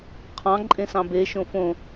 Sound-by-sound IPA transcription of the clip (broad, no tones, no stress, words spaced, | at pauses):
qʰɑ̃ǃʼẽsɑ̃ be ʃõfõ